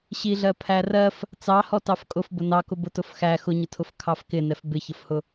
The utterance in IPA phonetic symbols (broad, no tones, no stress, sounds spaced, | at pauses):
ɕ i ɮ ɜ pʰ æ r ɜ f | t͡s ɑ h ɔ t ɑ f kʼ ʊ f b ʊ n ɑ k ʊ b ʊ t ʊ f x æ x ʊ ɲ ʊ tʰ ʊ f kʰ ɑ f k ɪ n ɛ f b ɪ ç ə f h ʊ